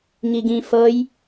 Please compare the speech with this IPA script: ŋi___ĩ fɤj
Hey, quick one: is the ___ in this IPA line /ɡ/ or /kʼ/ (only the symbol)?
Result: ɡ